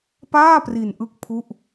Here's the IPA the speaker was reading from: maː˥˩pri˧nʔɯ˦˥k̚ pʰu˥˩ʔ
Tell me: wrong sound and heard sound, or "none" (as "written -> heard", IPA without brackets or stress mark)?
m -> p